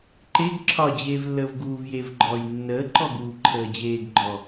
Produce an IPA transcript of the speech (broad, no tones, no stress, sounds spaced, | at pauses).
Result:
ǃ e ɡ ǁʰ ɒ d͡ʑ eː v lː əː v ɡ uː v j e v ɡ͡ǃ ɔː j nː əː ǃ ɔ ɡ uː ǃʰ əː d͡ʑ eː ɡ ɡ͡ǃ ɔ